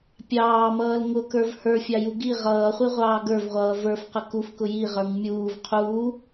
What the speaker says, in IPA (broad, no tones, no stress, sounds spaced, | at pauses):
pʲ ɑː m ʌː l ŋ ʊ k ə˞ v h ə˞ fʲ ɑ j u ɡ i ʁ ʌː χʷ i ʁʷ ɑː ɡ ə˞ v ʁʷ ʌː v ə˞ f q ə k u f k ʊ j i ʁ ə˞ ŋ mʲ uː v qʰ uː